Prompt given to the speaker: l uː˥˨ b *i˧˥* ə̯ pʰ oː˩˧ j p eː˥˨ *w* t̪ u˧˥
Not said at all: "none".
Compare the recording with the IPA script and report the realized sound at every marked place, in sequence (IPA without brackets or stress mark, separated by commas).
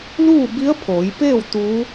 i˧˥, w